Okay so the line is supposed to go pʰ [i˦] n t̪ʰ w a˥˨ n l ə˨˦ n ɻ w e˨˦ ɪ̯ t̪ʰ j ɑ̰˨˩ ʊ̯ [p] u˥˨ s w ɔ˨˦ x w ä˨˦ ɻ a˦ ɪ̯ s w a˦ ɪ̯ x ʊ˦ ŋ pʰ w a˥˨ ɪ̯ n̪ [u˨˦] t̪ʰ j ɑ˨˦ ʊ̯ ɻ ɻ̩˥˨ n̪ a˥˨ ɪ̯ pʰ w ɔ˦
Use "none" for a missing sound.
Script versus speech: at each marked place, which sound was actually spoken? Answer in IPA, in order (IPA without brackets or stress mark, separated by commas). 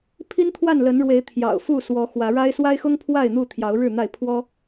i˦, f, u˥˨